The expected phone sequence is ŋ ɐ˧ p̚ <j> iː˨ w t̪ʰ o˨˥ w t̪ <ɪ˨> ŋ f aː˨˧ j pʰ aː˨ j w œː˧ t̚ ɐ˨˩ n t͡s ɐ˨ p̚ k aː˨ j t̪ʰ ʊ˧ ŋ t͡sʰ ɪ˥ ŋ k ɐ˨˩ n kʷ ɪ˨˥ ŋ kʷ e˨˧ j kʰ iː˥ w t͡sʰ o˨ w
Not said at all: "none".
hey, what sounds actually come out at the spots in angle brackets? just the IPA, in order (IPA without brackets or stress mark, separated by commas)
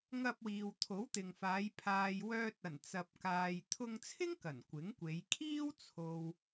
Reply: w, ɪ˨